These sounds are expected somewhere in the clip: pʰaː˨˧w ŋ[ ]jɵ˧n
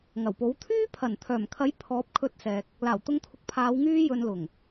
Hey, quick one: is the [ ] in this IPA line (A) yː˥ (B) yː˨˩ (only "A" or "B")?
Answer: A